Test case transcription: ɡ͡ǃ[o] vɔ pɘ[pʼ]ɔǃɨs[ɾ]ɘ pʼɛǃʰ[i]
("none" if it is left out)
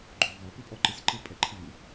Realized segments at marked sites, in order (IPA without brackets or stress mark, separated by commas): o, pʼ, ǃ, ɨ